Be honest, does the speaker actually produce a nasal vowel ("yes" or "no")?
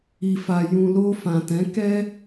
yes